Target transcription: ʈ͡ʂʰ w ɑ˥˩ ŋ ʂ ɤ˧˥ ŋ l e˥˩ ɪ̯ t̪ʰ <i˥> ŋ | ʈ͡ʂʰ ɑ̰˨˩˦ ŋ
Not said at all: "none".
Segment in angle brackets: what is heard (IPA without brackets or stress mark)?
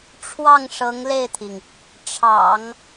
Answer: i˩